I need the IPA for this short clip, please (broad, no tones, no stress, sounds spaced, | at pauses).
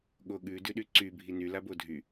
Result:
ɠ o ɠ ʉ d ʉ ɗ y ǀ y bʱ i n y l a b o dʱ y